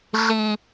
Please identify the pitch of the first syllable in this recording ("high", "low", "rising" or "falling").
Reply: low